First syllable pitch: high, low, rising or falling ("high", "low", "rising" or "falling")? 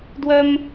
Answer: high